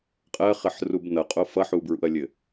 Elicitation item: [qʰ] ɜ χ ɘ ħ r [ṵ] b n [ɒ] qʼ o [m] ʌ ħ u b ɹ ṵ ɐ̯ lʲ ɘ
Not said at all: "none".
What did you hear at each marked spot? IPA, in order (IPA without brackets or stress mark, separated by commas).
qʼ, u, ʌ, f